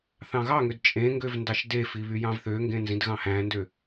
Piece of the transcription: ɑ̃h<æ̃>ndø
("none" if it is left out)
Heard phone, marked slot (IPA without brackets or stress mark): æ̃